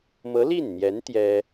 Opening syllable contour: rising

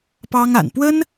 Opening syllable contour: high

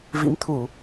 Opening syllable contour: rising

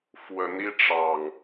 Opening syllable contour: rising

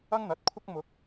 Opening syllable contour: high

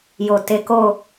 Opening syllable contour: low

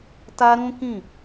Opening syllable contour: high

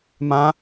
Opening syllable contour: high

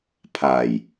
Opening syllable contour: low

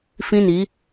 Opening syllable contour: high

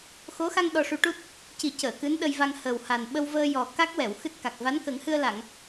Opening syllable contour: rising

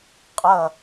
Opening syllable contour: falling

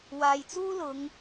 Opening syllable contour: low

